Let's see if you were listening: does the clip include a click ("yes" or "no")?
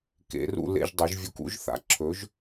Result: yes